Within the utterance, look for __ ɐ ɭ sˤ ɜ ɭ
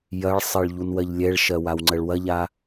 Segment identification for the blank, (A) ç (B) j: B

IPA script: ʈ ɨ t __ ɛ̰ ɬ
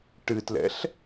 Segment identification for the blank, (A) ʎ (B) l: B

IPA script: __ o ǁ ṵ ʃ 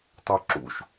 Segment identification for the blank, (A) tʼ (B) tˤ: B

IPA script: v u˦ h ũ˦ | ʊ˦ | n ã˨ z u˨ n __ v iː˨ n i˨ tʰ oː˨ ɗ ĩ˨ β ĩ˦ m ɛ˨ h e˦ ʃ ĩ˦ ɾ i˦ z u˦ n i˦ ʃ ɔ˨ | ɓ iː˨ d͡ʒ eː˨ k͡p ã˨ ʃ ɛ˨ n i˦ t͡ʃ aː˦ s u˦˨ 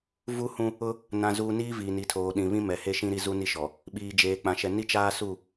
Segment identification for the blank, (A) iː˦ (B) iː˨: A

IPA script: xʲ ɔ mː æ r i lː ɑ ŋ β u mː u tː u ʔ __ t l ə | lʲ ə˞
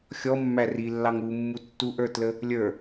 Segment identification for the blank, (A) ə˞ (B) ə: A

